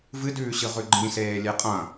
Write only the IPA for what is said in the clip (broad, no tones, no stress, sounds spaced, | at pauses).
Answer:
v ɨ d ʉː ɕ ɨ ʁ ʉ ɡ͡ǃ ĩ s eː lʲ e qʼ ɐ̃